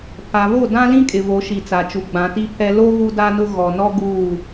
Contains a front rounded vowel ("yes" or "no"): no